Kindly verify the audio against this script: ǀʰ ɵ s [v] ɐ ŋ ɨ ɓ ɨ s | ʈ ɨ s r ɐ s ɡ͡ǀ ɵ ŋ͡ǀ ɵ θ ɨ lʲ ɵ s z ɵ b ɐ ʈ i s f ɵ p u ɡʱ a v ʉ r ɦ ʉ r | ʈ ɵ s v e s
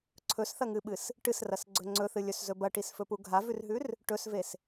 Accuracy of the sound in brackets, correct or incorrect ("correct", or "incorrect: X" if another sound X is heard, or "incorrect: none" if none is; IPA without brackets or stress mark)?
incorrect: θ